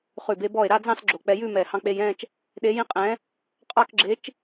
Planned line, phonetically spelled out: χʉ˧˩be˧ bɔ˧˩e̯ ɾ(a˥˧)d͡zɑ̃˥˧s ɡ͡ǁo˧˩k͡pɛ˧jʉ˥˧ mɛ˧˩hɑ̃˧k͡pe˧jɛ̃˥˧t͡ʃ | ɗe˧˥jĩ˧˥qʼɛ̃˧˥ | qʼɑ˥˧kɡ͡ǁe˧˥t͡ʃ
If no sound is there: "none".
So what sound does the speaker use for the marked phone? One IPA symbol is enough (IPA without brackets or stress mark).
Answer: a˥˧